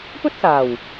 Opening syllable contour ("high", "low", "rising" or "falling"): high